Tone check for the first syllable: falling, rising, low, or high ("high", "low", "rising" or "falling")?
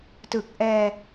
low